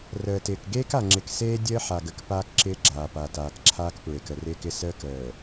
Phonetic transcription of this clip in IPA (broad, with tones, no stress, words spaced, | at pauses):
rəː˨tɪː˨k ɡeː˦ka˨ŋ͡ǁɪ˨k seː˦ dʲəː˦ ħa˨ɡə˨k paː˦kǁɪː˦ɡ͡ǁaː˨ pa˨taː˨kǁʰaː˦kpɹe˨k ə˨rɪː˦kɪ˦ səː˦k əː˨